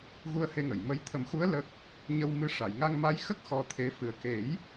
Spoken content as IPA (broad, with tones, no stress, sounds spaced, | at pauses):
ɣ u˧ ə̯ h e˧ ŋ ə˨˩˨ j m ə˧˥ j t̪ʰ ə˨˩˦ m x u˧˥ ə̯ l ə˦˥ k̚ | ɲ ə˧ w m ɨ˧˥ ʂ a˨˩˨ j ŋ a˧ ŋ m a˧˥ j x ə˦˥ k̚ x ɔ˧ t̪ʰ e˧˥ f ɨ˨˩ ə̯ k e˨˩˦ j